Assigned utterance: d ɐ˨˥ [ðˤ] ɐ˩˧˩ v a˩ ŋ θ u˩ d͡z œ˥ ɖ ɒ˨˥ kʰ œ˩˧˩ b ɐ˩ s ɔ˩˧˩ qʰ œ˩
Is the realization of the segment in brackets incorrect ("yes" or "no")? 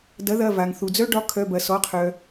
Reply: yes